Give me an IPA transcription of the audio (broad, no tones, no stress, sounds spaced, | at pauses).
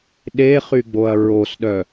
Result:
ɗ e χ y ɡ͡b o ɐ̯ ɹ o s ɗ œ